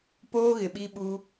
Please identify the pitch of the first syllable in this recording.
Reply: high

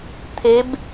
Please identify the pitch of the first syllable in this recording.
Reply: rising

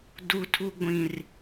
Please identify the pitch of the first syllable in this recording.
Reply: low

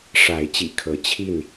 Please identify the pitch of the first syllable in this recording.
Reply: rising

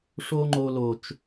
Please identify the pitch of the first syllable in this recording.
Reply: high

